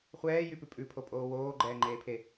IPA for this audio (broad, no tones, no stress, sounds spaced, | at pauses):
χʷ ɛː j y p ʉ pʼ ʉ pʰ o pʼ oː w oː ɡ͡ǃ ɛː ŋ͡ǃ eː pʰ e